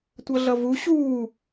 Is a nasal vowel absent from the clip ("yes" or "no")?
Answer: yes